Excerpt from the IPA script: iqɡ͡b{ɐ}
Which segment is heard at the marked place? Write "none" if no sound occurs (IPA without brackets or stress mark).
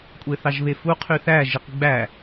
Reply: æ